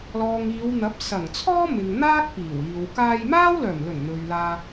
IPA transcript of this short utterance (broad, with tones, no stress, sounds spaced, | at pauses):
l ɔː˨ ŋ iː˨˧ w n̪ ɐ˨˥ p̚ s ɐ˨˩ ŋ t͡sʰ ɔː˥ m ɪ˨ ŋ n̪ aː˥ k̚ p iː˨˩ w iː˨ w k aː˧ j m aː˥ w l œː˨˩ m l ɵ˨˩ n n̪ ɵ˨ ɥ l aː˧